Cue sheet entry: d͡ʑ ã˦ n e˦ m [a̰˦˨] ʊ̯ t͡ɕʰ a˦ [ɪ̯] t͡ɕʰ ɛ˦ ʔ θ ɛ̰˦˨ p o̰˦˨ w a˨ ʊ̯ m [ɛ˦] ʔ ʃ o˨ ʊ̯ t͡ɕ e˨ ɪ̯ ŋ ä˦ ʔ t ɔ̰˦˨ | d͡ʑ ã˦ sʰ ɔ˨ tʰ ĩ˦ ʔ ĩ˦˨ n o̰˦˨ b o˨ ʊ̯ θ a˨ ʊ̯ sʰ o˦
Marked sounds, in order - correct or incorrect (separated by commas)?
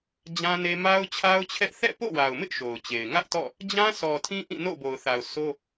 incorrect, incorrect, incorrect